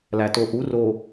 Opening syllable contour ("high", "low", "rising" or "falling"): low